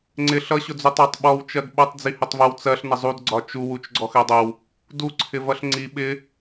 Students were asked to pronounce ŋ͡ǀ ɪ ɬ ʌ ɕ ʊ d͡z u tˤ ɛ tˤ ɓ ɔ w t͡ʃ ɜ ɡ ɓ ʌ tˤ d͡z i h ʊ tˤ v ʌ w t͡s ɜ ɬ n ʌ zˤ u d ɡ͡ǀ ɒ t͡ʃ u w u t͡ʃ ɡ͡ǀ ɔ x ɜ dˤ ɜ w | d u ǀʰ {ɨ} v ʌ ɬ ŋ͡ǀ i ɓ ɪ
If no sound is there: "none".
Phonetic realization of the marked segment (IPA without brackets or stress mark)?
ɪ